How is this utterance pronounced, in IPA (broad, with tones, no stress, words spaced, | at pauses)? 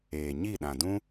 eː˨ɲi˦˨ ɗã˨dũ˦